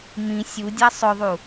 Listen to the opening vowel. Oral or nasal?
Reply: nasal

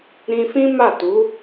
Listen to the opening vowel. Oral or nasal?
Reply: nasal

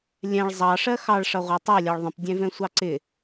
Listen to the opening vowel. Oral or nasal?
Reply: nasal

